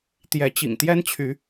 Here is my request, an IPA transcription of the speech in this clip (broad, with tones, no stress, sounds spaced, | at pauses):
t̪ j ɛ˨˦ t͡ɕ ḭ˨˩ ŋ t̪ j ɛ˦ n t͡ɕʰ y˨˦